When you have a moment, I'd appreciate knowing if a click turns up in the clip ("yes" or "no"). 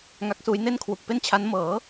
no